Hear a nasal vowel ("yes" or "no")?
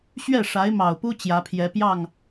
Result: no